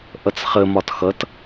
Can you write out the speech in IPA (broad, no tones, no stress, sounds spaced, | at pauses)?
ʔ ʌ t͡s χ ə m ɒ t x ʌ t